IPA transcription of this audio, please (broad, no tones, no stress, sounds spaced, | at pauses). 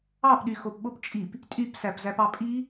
ɑ p ɗ y x o p ɓ o p t͡ʃʼ i p | tʼ y p s æ p z æ p ɑ pʼ i